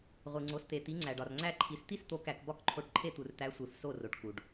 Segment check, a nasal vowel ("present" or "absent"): absent